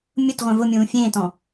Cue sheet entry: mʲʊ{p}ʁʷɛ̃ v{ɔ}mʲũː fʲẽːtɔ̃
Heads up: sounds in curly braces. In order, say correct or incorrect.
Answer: incorrect: t, incorrect: ʊ

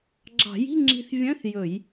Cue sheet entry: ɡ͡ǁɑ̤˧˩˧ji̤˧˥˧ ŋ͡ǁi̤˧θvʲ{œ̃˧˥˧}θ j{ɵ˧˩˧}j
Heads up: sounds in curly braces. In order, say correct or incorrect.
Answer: correct, correct

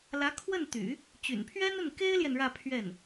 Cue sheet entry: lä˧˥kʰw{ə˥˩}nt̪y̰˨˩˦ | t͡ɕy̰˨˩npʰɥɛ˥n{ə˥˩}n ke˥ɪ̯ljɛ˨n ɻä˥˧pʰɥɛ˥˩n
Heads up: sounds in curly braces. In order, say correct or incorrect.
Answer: correct, correct

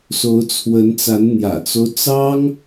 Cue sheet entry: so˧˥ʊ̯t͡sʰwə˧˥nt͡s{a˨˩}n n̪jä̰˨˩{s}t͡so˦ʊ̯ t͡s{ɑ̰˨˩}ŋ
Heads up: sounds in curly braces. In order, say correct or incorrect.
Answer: incorrect: a˧˥, incorrect: none, incorrect: ɑ˥

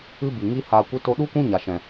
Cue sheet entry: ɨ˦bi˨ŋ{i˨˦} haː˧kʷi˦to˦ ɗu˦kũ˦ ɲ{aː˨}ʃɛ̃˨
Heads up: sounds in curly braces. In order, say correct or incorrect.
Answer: incorrect: i˦, incorrect: a˨

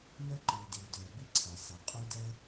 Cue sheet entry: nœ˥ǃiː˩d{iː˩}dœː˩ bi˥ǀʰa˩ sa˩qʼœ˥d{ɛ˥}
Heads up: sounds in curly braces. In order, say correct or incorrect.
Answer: correct, correct

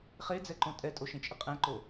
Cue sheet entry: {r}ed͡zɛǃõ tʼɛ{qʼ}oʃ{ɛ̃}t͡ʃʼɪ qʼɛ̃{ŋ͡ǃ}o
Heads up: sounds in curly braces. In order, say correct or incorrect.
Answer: incorrect: χ, incorrect: tʼ, incorrect: ẽ, incorrect: ǃ

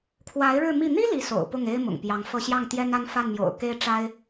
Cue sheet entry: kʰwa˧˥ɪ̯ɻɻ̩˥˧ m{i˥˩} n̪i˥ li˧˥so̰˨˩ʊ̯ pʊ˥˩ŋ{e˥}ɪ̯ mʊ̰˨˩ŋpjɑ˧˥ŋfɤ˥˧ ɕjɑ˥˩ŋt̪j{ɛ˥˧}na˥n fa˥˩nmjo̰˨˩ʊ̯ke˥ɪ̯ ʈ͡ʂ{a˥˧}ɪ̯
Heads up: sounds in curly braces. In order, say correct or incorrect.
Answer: correct, correct, incorrect: ɛ˥, incorrect: a˥

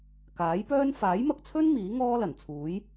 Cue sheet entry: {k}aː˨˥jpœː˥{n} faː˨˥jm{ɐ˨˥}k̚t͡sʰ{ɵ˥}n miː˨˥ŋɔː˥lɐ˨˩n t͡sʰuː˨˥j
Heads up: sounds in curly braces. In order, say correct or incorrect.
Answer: correct, correct, incorrect: ɐ˧, correct

